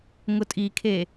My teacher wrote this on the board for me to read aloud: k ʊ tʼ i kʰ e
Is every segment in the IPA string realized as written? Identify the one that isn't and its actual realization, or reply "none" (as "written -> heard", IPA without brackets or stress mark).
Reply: k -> ŋ